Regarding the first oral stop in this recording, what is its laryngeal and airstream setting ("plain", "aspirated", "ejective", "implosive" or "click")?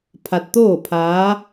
aspirated